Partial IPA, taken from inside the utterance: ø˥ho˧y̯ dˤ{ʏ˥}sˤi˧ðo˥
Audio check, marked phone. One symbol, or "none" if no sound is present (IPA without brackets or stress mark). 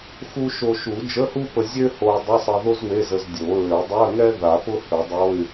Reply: ʏ˧˥˧